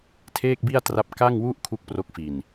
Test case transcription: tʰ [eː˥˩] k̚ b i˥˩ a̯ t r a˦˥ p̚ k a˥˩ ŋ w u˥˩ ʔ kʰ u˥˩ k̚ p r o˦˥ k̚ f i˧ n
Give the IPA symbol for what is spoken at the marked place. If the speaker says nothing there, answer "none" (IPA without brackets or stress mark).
eː˥˩